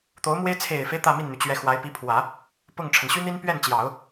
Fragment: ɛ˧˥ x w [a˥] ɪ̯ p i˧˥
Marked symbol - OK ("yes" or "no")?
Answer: no